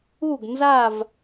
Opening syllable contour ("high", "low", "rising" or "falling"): falling